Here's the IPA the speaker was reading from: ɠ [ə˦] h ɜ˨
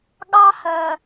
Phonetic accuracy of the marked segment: incorrect: ɑ˦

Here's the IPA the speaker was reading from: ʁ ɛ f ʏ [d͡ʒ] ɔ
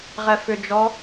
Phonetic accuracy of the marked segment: correct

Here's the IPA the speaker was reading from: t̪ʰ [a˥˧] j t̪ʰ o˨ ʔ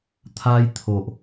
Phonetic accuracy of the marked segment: incorrect: a˧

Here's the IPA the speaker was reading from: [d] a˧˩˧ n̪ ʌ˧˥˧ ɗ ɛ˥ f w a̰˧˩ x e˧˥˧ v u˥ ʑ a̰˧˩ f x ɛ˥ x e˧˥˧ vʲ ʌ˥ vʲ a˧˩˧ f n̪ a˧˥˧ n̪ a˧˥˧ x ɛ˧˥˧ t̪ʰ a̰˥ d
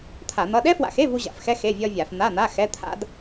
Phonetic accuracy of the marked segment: incorrect: t̪ʰ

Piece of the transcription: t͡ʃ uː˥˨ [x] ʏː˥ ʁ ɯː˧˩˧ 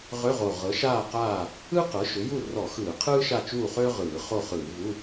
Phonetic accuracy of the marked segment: incorrect: χ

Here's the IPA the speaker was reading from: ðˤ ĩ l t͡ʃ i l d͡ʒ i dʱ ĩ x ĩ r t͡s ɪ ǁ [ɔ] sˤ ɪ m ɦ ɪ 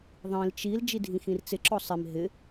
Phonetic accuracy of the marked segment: correct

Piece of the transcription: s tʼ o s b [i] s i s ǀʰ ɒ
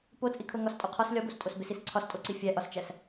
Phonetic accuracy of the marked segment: incorrect: e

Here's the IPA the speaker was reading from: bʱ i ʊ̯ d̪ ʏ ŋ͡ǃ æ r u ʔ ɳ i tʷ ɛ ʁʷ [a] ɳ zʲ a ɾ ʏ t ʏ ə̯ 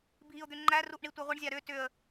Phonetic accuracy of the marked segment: incorrect: ə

